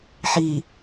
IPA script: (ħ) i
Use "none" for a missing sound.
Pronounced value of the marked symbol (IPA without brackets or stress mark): ħ